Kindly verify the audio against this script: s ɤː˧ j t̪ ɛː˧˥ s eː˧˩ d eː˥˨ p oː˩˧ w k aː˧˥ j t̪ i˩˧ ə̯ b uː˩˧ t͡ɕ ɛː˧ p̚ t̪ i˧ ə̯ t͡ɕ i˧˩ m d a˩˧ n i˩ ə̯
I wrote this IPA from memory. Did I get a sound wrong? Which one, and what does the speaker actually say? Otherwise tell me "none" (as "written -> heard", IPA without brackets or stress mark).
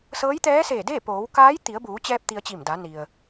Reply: ɤː˧ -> ɤː˧˥